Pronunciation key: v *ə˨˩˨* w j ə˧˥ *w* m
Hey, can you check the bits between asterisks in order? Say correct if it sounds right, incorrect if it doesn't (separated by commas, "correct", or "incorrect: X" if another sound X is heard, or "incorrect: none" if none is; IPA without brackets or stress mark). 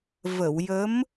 correct, incorrect: none